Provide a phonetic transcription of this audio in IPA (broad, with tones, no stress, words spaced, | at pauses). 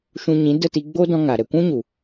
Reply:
ʃũ˧ɲĩ˨˦ də˦˨ti˧ɡ͡bo˦ dɔ̃˦ŋa˨ ɾɛ˨kʷũ˦ɲu˨